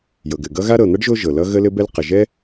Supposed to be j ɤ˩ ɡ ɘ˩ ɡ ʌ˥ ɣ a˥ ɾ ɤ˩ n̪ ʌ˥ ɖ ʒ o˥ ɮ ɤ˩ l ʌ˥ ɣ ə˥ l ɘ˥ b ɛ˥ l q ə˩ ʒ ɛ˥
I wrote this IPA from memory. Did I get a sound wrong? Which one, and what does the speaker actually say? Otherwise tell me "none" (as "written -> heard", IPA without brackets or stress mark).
ɮ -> ʒ